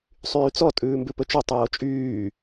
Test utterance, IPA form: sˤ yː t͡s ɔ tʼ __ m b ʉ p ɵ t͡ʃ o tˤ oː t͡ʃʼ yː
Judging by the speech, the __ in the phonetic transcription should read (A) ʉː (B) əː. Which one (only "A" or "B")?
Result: A